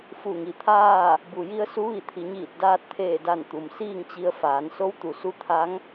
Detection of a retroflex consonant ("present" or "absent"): absent